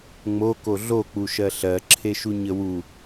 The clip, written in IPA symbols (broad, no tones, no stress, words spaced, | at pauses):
ŋ͡moko ɮok͡puʃɜ ɬɜǁʰeʃuɲə wu